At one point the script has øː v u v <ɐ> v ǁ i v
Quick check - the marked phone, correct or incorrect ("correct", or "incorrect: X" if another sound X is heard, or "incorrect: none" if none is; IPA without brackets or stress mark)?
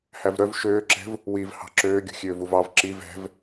incorrect: ɑ